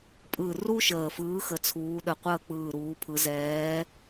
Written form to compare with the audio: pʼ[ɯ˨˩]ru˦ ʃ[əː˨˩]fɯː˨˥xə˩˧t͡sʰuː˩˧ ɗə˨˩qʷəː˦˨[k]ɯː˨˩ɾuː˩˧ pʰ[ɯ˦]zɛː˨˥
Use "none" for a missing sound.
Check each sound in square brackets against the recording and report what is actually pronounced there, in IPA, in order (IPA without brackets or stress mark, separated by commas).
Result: ɯ˨˩, əː˨˩, k͡p, ɯ˩˧